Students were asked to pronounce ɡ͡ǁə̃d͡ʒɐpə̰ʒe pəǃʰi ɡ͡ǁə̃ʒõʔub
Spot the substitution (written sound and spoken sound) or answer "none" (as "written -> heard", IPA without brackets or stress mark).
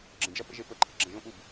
none